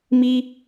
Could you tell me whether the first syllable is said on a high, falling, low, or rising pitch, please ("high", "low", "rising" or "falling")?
high